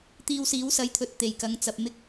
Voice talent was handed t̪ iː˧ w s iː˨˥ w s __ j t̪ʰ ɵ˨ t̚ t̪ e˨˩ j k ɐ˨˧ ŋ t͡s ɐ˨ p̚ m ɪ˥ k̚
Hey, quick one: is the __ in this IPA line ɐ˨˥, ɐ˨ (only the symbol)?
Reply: ɐ˨˥